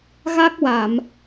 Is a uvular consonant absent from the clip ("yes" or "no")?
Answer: yes